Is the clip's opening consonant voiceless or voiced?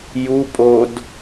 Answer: voiced